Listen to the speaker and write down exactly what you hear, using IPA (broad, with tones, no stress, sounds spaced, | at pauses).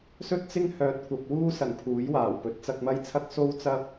s ɵ˥ t̚ t͡s ɪ˥ ŋ h œː˨ t̚ kʷ ɐ˨ p̚ w uː˥ s ɐ˨˩ n pʰ uː˨˥ j w aː˨˩ w p ɵ˨˥ t̚ t͡s ɐ˧ k̚ m ɐ˥ j t͡sʰ ɐ˥ k̚ s o˥ w t͡s ɐ˥ p̚